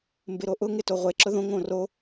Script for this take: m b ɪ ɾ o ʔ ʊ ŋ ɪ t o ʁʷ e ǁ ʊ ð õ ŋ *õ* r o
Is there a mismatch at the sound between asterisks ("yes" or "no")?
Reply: no